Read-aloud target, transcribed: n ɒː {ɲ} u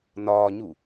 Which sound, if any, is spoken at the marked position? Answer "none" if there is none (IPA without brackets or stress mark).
ɲ